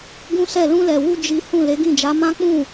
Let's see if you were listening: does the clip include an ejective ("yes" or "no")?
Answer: no